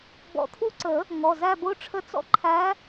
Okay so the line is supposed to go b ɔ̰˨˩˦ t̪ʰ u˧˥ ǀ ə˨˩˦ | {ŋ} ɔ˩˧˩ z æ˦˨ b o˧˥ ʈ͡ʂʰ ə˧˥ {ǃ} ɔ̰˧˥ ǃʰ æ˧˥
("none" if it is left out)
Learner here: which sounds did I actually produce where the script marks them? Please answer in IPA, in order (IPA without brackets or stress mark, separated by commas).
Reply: ŋ, t͡s